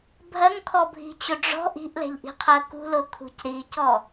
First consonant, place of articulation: labial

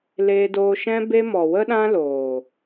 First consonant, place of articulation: alveolar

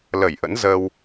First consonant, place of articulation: alveolar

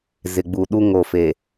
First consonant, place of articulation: alveolar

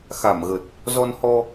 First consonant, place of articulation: velar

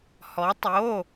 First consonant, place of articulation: glottal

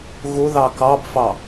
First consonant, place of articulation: velar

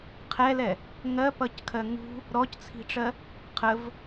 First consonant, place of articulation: uvular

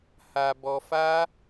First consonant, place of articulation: glottal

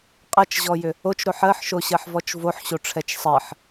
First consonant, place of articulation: uvular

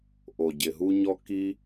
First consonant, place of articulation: glottal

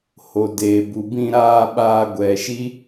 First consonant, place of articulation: glottal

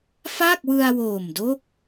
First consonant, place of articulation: labial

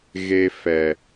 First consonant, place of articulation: velar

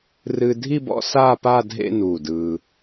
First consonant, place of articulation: alveolar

